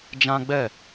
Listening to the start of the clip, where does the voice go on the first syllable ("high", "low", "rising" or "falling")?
high